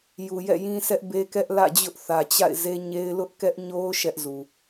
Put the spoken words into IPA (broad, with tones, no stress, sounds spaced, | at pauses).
j u˨ j ɛ̰˦˨ j ĩ˦ sʰ ɛ˦ ʔ b e˦ k ɛ˦ ʔ l ä̰˦˨ d͡ʑ ʊ˦ ʔ θ ä˨ t͡ɕ a̰˦˨ ɪ̯ z e˦ ɲ e˦ ɪ̯ l ʊ˦ ʔ k ɛ˦ ʔ ɲ o˦ ʊ̯ ʃ ɛ˦ ʔ z u˨